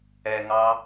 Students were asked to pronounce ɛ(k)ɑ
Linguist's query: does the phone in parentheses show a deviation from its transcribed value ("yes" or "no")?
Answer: yes